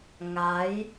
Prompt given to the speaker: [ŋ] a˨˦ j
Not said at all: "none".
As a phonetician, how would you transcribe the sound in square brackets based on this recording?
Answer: ŋ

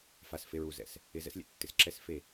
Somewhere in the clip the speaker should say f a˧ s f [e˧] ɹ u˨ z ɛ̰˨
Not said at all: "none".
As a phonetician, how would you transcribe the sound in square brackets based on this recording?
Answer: e˧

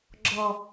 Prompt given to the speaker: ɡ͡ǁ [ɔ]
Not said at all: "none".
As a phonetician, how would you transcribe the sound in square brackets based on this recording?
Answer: ɔ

